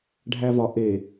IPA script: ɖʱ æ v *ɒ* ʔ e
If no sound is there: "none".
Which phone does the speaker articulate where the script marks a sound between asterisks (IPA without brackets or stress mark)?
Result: ɒ